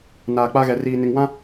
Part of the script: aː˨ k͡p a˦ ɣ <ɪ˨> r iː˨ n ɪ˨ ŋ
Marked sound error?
yes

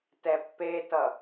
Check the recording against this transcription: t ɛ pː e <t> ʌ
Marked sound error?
no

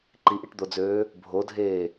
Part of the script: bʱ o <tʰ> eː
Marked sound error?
yes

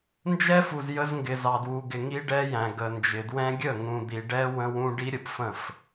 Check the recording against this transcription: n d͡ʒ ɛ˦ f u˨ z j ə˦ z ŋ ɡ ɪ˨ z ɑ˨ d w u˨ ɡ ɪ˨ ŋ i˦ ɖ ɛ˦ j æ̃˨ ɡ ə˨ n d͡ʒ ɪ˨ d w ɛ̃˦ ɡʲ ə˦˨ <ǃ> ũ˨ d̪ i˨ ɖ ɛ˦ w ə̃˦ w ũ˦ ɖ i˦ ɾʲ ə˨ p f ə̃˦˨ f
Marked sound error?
yes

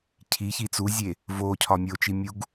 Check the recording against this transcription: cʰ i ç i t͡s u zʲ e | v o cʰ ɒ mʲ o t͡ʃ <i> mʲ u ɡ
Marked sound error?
no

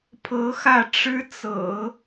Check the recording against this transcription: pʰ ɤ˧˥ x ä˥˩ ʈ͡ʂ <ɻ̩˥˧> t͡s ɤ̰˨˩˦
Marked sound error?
yes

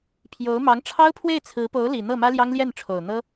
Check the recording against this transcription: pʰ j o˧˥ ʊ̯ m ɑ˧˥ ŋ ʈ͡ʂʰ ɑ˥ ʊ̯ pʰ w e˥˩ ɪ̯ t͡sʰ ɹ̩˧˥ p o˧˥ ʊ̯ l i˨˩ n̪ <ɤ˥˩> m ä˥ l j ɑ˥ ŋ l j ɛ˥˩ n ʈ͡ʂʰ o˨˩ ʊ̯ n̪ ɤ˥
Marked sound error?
no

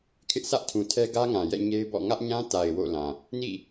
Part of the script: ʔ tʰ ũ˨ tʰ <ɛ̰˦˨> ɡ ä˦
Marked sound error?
yes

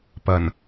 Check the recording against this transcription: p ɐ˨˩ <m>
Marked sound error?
yes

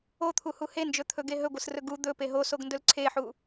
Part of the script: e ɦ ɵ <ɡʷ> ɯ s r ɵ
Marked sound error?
no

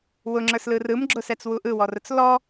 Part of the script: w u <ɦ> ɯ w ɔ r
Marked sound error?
yes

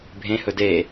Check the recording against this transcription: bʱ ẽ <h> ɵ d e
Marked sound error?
no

